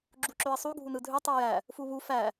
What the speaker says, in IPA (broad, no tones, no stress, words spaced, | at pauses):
ɡ͡ǁuǁøə̯sˤu ɡʱunɯdʱø tˤujæ | fuβu fæ